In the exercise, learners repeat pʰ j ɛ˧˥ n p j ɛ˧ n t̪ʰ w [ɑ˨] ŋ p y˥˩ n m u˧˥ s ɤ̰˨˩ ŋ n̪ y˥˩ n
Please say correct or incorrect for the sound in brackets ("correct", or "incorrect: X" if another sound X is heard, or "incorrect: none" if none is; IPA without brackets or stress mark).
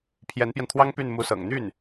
incorrect: ɑ˥